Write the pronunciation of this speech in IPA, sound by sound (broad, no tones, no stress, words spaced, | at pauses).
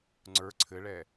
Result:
ŋ͡ǀə˞ ǀʰɘɭɛ